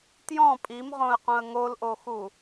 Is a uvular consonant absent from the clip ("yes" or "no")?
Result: no